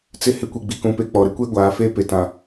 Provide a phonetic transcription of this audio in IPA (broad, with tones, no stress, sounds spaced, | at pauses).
t͡s ɪ˦ h ɪ˦ kʷ e˨ ɡ͡b i˨ k ũ˨ p e˨ k͡p ɔ˨ ɾ ɪ˦ kʷ e˦ ɡʷ aː˨˦ f eː˦ p e˨ t ã˨